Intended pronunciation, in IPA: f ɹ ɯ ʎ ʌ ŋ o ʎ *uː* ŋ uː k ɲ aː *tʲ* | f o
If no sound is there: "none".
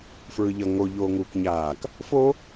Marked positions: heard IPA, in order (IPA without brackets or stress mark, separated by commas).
oː, k